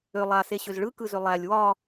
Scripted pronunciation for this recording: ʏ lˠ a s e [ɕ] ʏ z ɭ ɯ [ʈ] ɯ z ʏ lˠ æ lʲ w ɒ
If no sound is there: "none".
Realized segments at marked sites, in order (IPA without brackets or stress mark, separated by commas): ɕ, k